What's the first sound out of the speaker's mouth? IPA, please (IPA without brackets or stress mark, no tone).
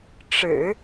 ʈ͡ʂ